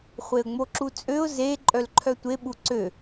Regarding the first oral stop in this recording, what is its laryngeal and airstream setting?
click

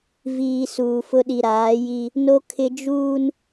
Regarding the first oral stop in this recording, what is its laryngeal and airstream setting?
implosive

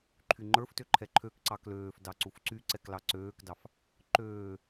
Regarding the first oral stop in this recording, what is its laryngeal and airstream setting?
click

